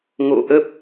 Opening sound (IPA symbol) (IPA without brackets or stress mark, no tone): ŋ